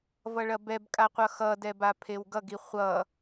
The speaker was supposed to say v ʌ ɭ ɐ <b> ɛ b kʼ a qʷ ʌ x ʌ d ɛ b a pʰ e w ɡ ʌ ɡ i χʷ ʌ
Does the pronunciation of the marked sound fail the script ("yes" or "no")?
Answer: no